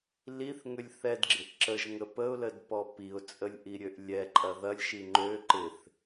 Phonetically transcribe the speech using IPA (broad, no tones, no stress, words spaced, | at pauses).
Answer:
liθŋʏlʲ θɛdɡ͡ǁɪʔ ǁəʒŋə pəʊ̯lədpɔ piʊ̯t͡sʼəlʲʔiɾʲøʔ lʲɛǃʼɐ ðɐlʲʃi ŋ͡ǃø ǃɪθ